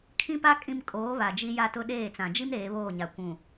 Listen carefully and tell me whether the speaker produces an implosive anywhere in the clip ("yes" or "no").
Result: yes